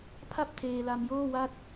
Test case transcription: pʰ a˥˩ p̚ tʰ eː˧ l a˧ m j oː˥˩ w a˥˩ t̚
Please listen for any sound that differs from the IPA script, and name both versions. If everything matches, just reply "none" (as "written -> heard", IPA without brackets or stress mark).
none